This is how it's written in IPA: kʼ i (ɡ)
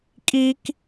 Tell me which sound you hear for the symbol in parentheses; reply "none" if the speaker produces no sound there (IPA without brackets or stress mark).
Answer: k